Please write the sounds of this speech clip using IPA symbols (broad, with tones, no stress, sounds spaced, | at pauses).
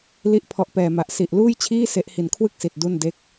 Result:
l i˦˥ ʔ pʰ ɔ˨˩ ʔ p ɛː˨˩ m a˨˩ ʔ s i˨˩ ʔ l uː˥˩ j t͡ɕʰ iː˥˩ s e˦˥ ʔ h i˨˩ n kʰ w ɯ˥˩ k̚ s i˨˩ t̚ d u˥˩ n d e˥˩ k̚